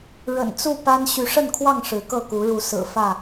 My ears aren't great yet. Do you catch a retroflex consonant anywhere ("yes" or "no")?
yes